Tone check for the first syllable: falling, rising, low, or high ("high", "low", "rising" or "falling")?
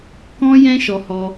high